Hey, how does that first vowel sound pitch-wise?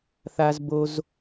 high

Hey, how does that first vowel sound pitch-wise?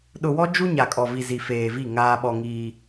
low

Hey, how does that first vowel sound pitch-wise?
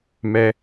high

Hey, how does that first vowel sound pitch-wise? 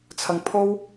low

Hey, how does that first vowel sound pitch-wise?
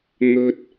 high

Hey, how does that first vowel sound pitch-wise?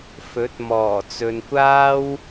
rising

